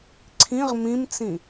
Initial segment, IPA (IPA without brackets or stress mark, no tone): ǀʰ